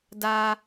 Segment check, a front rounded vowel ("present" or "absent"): absent